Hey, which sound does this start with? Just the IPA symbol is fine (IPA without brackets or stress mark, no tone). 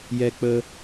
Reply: j